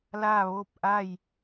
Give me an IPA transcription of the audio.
l aː˥˨ ʋ oː˥˨ p̚ ʔ a˥˨ j

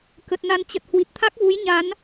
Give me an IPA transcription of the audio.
k ə˨˩ t̚ n a˧ n t͡ɕ ə˨˩ t̚ h w i˨˩ t̚ t̪ʰ a˦˥ k̚ v u˨˦ j ɲ a˨˦ n

